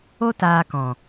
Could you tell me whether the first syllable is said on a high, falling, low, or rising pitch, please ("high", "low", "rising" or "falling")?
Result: high